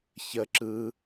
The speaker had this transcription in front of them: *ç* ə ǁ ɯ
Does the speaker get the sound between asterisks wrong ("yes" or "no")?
no